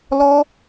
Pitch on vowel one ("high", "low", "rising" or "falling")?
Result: high